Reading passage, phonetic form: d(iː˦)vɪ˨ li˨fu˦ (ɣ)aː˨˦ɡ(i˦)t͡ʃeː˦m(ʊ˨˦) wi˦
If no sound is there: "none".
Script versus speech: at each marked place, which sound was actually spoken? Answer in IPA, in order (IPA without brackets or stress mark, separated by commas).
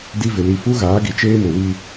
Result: i˦, ɣ, i˨, ʊ˨